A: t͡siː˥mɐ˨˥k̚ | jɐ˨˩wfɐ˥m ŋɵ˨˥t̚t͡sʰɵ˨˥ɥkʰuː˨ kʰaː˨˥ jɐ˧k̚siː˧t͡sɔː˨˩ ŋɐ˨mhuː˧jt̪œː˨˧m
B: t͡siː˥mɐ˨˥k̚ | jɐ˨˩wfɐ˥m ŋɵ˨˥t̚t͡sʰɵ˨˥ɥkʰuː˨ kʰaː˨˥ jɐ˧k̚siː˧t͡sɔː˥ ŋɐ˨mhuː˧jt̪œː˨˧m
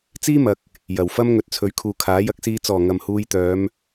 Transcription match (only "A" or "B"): A